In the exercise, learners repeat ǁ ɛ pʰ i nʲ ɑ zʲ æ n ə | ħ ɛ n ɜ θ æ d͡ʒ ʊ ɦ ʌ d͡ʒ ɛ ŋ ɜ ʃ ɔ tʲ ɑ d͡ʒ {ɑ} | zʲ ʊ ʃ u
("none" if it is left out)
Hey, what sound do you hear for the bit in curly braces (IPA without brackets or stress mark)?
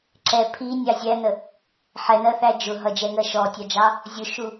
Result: ɑ